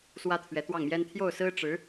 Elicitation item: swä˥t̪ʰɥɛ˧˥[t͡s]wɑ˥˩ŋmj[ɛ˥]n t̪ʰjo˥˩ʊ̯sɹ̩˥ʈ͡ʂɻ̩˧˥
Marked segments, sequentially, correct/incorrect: incorrect: t̪, correct

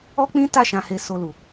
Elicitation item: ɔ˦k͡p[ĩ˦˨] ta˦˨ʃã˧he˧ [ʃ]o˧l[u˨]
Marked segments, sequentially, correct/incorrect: incorrect: ĩ˦, incorrect: s, correct

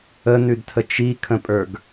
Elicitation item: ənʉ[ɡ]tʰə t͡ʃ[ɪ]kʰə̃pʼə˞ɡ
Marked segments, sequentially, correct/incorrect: incorrect: d, incorrect: i

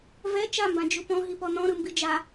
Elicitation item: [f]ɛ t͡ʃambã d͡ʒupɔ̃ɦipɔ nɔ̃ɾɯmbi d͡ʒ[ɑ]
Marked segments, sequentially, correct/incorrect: incorrect: v, incorrect: a

